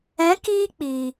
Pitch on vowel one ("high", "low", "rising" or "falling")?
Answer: rising